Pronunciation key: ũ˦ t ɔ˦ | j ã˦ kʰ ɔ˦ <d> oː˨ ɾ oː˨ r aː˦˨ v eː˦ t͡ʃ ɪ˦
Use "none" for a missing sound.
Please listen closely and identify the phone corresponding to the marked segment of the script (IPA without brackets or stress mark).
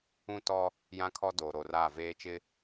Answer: d